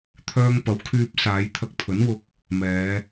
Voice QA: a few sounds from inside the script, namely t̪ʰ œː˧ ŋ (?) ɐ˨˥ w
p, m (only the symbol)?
p